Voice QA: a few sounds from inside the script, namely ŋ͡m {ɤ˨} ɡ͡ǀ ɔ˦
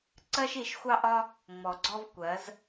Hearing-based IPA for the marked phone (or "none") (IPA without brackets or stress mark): ɔ˨